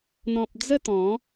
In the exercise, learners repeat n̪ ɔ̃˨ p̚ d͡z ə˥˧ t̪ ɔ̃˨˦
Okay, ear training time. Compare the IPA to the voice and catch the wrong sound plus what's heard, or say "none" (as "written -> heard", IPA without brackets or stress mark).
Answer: none